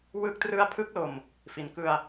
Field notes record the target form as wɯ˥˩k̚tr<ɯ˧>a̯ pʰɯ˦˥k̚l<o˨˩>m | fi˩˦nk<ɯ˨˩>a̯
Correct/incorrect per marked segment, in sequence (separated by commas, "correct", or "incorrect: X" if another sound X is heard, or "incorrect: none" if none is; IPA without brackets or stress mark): incorrect: ɯ˥˩, correct, incorrect: ɯ˧